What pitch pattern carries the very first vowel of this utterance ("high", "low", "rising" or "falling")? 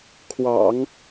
low